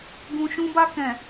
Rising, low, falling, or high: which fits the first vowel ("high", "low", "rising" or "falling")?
low